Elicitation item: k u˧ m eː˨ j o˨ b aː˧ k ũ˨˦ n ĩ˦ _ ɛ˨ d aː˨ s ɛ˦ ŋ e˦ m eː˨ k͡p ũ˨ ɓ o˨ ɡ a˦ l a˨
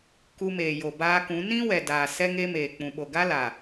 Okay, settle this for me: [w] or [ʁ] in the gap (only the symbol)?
w